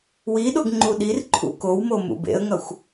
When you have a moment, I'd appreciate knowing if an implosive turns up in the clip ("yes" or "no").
yes